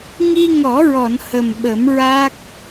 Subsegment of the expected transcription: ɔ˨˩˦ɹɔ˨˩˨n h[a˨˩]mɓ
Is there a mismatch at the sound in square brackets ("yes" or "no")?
yes